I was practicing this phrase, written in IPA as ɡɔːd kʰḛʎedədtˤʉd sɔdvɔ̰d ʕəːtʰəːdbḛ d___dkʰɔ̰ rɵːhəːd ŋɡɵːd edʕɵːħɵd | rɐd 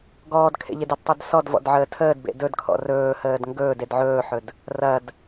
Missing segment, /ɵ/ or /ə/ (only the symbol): ɵ